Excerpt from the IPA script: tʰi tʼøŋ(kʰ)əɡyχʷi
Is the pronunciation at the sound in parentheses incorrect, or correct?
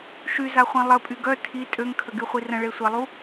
correct